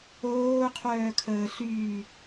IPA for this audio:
oːqʰœːkʰəː ɬyː

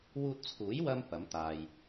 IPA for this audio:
wuː˧t̚t͡sʰuː˨˥jwɐ˧m pɐ˨˥m t̪aː˨j

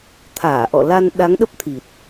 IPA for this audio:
t̪ʰaː˧˩ʔɔ̰˧˨ la˧n ɗa˨˦ŋ ɗə˦˥p̚t̪ʰi˨˩t̚

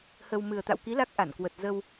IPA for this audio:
hə˧w mɨ˨˩ə̯t̪a̰˧˨wki˨˦ la˦˥k̚ʔa˧˩nkwə˨˩t̚zə˧w

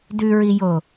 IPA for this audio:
dʉɹijo

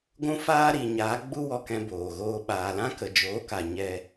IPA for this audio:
ɡʷũ˦faː˦ ɾi˨ɲaː˨˦ɡ͡bu˦ wɔ˧kɛ̃˧ boː˨ɣoː˧ ɓaː˨ lã˦kə˨d͡ʒoː˨˦ka˨ ɲɛ˦

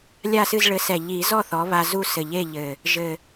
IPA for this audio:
lʲa˥˩sɨ˥˩z ɭɘ˩˥sɛ˨˩ʎi˨˩˦zɔ˥˩ θɔ˩˥βa˧zu˥˩ sɘ˨˩ʎe˥˩ʎɘ˨˩ | ʒɘ˨˩

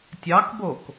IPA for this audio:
tʲɑkbok

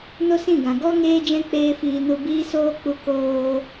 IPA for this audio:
no˦sĩ˦˨ɡã˨ ɡɔ˧ ŋeː˦d͡ʒɛ̃˦ k͡peː˦fiː˧ nu˧biː˦soː˦k͡pu˧ koː˧

